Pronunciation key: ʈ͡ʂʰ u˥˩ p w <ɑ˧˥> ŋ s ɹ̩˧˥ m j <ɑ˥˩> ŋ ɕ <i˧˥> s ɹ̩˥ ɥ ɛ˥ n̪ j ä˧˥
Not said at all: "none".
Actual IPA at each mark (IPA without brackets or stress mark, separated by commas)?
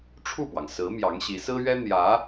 ɑ˩, ɑ˧˥, i˧˥